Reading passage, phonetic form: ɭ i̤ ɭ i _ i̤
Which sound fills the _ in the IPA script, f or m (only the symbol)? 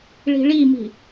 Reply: m